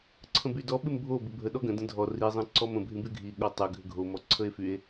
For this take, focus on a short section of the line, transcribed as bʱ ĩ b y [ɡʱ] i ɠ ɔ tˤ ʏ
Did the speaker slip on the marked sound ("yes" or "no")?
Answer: no